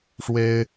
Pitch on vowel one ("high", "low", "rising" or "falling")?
high